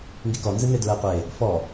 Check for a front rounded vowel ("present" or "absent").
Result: absent